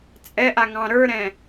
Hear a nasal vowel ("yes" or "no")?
yes